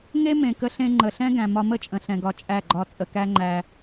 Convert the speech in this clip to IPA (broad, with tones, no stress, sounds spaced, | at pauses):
ŋ e˦ m ẽ˨ k ə˧ ɬ ẽ˧ ŋ͡ǃ ə˨ ɬ ɛ̃˦ ɡ æ̃˨ m ɒ˧ m ə˦ t͡ʃʼ ə̃˨ ɬ ɛ̃˨ ɡ ɒ˧ t͡ʃʼ æ˦˨ ɡ͡ǃ ɒ˧ t͡sʼ ə˨ k æ˦ ŋ͡ǃ æ˧